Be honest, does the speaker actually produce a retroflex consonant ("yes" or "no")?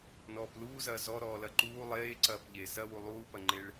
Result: yes